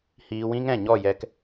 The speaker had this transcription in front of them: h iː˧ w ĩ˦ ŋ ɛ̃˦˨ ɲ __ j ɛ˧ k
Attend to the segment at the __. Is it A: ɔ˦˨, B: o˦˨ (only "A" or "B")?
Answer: A